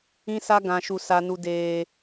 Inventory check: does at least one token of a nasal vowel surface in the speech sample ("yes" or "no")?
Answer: yes